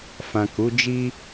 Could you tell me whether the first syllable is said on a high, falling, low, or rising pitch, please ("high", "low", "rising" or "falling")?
low